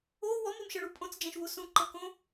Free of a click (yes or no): no